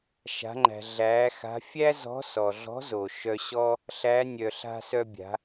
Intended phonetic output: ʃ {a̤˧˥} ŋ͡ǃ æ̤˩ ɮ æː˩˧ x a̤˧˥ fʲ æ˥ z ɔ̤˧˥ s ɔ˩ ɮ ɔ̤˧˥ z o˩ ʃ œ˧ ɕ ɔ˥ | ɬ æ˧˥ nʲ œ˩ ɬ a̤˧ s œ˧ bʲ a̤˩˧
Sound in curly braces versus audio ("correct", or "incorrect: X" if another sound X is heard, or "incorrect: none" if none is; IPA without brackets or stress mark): incorrect: a̤˩˧